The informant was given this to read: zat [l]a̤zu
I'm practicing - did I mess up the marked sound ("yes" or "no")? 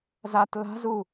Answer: no